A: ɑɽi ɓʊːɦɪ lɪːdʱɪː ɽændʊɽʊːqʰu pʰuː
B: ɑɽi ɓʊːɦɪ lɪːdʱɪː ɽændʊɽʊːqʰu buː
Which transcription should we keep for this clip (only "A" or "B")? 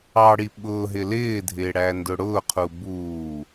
B